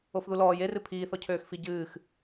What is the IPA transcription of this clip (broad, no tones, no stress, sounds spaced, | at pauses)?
o f ð u l ɔː j e r ɨ pʰ iː θ ɔ cʰ øː x f i ɟ ɨː x